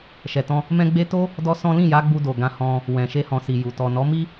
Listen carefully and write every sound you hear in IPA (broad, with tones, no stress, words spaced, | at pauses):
ʃɛ˨tɔ̃˧ | mɛ̃˦ɡ͡be˦ to˦ | dɔ˦sɔ̃˦ lĩ˦˨ja˨˦ɡ͡bu˧do˨ ɡã˧hɔ̃˧ | wɛ̃˨ʃe˧hɔ̃˨si˨ ju˨ tɔ˨nɔ˨˦mi˦